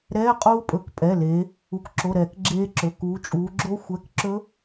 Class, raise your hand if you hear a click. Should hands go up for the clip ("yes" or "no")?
yes